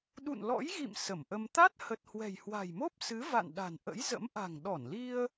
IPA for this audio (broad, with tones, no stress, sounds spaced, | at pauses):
ɗ ṵ˧˨ n l ɔ̰˧˥ j ɣ ḭ˧˨ m s ə˧˩ m ʔ ə˧ m t̪ a˦˥ t̚ h ə˨˩ t̚ h w ɛ̤˨˩ j h w a̤˨˩ j m o˦˥ p̚ s ɨ˨˦ v a̰˧˨ n ɗ a̤˨˩ n ʔ ə̰˧˥ j z ə̰˧˥ m ʔ a̤˨˩ ŋ ɗ ɔ˧˩ n l i˧ ə̯